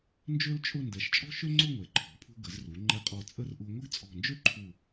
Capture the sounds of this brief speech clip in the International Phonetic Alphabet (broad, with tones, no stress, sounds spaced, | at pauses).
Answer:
n d͡ʒ ø˥ l t͡ʃʼ ʊ˥˧ n d ɛ˩˧ ʃ t͡ʃʼ ɔ̤˥ ʃ ø˥ ŋ͡ǀ ʊ˥˧ ŋʷ ɛ˩˧ ǃʰ ɔ̤˩˧ pʰ ṳ˧ ɡ ə˩˧ z r u˩˧ ŋ͡ǃ ɛ˧ qʼ ɔ˧˩ t͡sʼ ə˥˧ r ʔ u˧ ŋʷ ə˥ ɡ t͡sʼ ɔ̤˧˩ n d͡ʒ ø˥ ǃʰ u˧˩